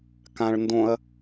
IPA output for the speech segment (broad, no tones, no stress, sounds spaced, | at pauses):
k ã ɭ n d õ ɐ̯